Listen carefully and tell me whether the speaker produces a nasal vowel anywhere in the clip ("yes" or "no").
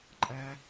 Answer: no